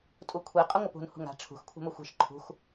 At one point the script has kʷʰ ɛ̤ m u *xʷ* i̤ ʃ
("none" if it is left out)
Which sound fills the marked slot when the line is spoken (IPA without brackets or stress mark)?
xʷ